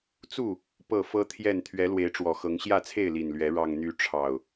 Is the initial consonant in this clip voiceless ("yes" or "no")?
yes